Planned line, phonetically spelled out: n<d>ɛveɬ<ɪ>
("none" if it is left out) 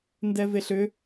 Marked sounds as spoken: d, ʏ

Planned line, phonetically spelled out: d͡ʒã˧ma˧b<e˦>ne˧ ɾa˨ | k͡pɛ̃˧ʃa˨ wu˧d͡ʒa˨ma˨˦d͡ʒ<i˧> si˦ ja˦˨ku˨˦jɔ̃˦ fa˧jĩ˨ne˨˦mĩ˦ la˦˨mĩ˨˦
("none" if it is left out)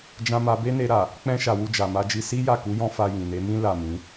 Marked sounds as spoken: e˦, i˧

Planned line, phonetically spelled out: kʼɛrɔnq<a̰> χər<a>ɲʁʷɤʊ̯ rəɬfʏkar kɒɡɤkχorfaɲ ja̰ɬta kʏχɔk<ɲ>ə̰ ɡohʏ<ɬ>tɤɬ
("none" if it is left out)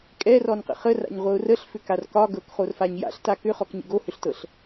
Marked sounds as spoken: ə̰, a̰, ɲ, ɬ

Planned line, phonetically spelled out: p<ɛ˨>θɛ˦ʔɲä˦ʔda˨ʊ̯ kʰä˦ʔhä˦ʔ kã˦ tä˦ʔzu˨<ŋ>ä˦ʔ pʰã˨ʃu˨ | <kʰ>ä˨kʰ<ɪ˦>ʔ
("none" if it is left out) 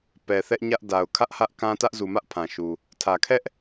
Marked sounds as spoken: ɛ˨, m, tʰ, ɛ˦

